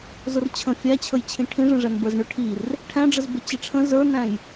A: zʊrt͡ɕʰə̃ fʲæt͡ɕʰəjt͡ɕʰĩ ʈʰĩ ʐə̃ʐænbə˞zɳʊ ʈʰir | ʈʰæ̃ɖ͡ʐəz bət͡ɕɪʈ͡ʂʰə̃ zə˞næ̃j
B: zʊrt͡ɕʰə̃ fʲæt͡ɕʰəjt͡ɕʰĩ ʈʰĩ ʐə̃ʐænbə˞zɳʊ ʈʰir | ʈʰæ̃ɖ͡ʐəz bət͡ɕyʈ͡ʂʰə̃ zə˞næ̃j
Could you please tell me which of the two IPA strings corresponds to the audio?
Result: A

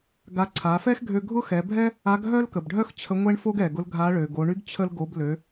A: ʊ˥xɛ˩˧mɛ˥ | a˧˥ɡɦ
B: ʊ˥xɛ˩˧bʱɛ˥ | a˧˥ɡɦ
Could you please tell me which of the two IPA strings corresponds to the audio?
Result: B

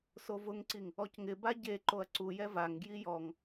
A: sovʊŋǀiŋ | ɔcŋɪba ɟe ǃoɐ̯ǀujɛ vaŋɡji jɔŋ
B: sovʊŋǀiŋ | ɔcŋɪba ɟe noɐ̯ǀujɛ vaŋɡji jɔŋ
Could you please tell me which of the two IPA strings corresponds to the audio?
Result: A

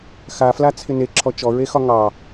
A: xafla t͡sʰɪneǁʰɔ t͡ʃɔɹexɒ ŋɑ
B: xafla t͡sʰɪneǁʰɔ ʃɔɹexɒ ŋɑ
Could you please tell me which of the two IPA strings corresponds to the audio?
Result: A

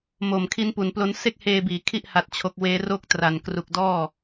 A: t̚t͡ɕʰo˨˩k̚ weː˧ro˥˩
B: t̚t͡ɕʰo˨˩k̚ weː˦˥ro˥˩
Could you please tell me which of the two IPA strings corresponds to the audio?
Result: B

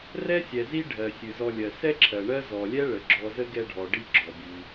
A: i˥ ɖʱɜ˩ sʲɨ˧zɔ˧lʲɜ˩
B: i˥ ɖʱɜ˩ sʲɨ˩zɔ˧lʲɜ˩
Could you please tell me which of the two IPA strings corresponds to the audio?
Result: B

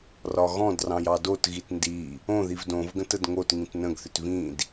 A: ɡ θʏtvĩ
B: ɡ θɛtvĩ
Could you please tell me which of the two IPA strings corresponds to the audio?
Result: A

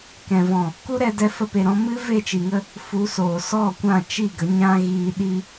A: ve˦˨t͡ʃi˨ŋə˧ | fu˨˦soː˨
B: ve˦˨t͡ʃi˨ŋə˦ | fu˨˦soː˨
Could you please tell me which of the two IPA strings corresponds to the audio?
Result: A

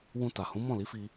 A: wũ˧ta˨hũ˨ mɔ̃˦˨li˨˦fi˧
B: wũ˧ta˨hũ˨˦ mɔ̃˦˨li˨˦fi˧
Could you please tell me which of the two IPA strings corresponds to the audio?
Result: B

